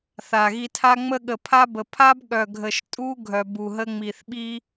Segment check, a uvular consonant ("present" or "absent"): absent